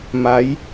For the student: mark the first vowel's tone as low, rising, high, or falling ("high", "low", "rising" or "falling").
rising